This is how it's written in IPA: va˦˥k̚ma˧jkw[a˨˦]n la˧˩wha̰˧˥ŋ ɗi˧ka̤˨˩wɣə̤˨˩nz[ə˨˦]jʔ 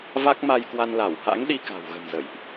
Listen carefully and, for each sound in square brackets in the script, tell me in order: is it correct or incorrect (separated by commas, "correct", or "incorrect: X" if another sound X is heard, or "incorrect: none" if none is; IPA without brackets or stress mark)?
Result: incorrect: a˧, incorrect: ə̰˧˨